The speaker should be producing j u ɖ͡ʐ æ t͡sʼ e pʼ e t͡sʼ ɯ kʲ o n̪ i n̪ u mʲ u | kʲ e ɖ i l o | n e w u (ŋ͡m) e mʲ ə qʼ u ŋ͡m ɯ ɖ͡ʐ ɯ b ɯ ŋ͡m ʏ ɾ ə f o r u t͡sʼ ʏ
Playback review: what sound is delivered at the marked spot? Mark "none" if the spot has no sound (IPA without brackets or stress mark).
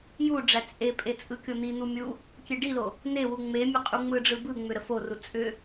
ŋ͡m